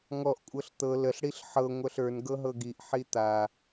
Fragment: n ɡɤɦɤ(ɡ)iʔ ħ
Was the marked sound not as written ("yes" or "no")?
no